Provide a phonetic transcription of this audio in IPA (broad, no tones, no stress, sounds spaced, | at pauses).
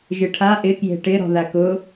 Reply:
ʒ ɪ ʈʰ a ʔ ɪ k j e̤ ʈ ɪ ɾ ɔ̤ ð a k ʊ